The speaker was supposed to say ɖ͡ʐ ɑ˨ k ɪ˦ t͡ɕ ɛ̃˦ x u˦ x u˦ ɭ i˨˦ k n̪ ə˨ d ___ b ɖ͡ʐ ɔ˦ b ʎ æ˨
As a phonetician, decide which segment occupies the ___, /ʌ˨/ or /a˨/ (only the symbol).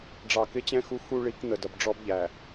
ʌ˨